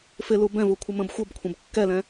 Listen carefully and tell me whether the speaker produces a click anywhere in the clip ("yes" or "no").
no